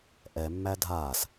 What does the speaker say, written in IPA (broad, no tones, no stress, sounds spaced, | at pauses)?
ʔ ɛ mː æ dʱ aː s